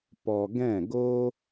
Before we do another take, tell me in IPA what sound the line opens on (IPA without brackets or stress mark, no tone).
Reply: p